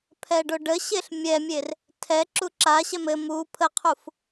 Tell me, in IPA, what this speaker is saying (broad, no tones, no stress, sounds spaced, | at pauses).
pʰ ɛ ɖ o ɖ ə ɕ e ɬ mʲ ɛ mʲ e r | tʰ ɛ ǁ u ǁ a ɕ ɛ m ɘ m u pʰ ə qʰ u f